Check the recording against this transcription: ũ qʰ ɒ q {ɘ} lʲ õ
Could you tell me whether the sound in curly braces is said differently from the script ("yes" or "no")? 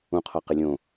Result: no